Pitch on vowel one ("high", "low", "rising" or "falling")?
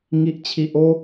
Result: high